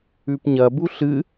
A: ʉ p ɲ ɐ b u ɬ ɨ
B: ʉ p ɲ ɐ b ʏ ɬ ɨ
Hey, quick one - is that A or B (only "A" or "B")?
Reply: A